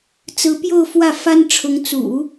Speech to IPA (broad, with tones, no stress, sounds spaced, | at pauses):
t͡s ɹ̩˧˥ p j o˥˧ ʊ̯ f w ä˥˩ f a˥ n ʈ͡ʂʰ ʊ˧˥ ŋ t͡s ṵ˨˩˦